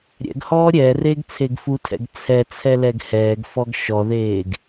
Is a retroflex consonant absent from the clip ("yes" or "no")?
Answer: yes